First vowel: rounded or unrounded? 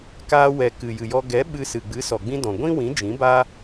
unrounded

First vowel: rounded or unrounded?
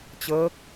unrounded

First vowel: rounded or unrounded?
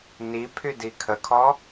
unrounded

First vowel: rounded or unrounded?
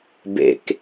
unrounded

